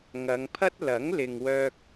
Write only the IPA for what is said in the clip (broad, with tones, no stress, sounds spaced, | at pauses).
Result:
ŋ ɐ˨˧ ŋ pʰ ɐ˥ t̚ l ɐ˨˥ ŋ l ɪ˨ ŋ w œː˧ k̚